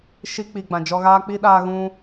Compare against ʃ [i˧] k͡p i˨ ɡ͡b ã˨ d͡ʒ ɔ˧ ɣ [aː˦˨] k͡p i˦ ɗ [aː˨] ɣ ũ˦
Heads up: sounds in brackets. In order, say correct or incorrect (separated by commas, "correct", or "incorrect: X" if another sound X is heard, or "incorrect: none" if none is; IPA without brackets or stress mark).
correct, incorrect: aː˦, incorrect: aː˦